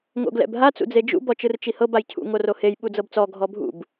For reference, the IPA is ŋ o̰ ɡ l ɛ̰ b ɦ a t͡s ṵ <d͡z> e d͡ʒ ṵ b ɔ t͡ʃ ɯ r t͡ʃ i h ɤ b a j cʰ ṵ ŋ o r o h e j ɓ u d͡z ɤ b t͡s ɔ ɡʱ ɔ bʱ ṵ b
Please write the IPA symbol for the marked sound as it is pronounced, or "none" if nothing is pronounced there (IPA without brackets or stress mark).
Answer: d͡z